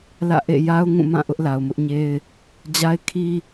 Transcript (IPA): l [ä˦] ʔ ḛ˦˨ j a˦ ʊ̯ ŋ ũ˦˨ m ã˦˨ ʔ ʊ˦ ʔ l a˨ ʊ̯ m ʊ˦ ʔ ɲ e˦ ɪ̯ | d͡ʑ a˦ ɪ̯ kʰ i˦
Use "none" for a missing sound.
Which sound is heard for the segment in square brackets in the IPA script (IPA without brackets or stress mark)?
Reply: ä̰˦˨